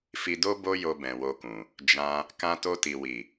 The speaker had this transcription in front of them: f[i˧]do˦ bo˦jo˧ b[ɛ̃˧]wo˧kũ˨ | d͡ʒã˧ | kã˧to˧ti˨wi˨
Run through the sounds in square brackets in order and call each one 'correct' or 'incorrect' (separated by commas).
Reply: correct, incorrect